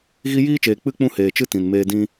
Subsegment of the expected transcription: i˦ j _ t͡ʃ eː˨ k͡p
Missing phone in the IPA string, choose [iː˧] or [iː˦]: iː˦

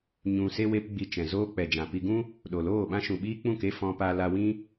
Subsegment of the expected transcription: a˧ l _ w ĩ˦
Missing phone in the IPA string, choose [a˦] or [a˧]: a˧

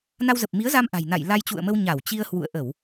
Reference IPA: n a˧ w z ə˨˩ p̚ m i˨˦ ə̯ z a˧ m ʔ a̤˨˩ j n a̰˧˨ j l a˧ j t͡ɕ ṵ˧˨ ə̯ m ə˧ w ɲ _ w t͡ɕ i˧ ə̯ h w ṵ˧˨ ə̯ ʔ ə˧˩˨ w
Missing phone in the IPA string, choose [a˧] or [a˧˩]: a˧˩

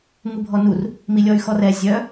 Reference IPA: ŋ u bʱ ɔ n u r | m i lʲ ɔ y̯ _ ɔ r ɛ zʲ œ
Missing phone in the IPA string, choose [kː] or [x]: x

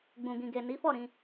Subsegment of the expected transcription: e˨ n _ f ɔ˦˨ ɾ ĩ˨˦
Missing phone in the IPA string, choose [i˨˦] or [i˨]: i˨˦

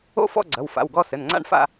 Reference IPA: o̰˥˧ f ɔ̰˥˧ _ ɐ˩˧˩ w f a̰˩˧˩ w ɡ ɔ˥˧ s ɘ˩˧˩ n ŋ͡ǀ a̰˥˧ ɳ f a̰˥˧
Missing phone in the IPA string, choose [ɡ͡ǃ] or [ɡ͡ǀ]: ɡ͡ǀ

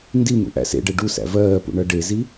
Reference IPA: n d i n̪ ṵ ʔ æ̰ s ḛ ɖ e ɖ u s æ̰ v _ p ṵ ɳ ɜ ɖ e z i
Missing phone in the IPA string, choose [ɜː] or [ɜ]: ɜː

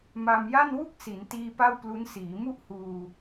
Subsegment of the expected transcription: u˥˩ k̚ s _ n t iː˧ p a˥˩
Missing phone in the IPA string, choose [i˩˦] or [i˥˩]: i˩˦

